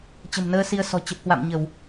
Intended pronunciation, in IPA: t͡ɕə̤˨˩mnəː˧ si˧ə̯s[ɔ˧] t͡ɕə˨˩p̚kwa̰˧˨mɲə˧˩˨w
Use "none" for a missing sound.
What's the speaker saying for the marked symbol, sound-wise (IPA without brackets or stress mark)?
ɔ̤˨˩